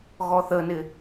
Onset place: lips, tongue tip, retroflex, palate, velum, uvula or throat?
velum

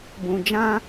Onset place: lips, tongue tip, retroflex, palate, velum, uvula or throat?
lips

